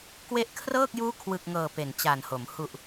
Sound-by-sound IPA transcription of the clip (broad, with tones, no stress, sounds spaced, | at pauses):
k w e˦˥ ʔ kʰ r ɤː˥˩ k̚ j uː˦˥ kʰ w ɯ˨˩ k̚ ŋ ɤː˨˩ p e˨˩ n t͡ɕ a˨˩ n h o˩˦ m h u˨˩ ʔ